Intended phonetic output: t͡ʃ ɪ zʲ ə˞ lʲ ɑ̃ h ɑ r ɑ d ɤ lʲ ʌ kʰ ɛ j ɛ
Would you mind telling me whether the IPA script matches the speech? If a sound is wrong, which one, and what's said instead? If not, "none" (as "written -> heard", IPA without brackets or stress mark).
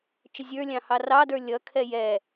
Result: ɤ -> ə˞